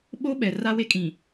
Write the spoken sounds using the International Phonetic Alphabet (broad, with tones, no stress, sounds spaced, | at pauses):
ɓ o˦ ɓ ɛ˨ r a˦ w e˦ kʼ ĩ˨